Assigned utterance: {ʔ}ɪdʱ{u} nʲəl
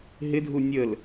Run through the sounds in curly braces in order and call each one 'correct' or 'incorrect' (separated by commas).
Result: incorrect, correct